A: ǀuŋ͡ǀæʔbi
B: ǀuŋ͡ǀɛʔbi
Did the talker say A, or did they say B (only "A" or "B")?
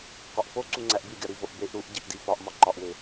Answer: A